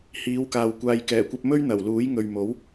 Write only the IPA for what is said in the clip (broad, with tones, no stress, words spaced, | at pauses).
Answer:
hiː˨˥wkaː˨w kʷaː˨jkɛː˨˩kʷɐ˧p̚ mɵ˥ɥn̪ɐ˨˩w luː˨˥jŋɵ˨ɥmo˨˥w